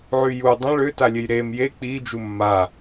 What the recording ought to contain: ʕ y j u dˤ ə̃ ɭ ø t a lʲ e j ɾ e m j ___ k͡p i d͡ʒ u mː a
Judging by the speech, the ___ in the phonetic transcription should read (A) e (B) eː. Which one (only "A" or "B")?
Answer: A